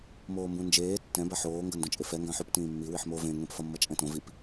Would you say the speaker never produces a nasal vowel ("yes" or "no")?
no